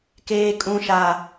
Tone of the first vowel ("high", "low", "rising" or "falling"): high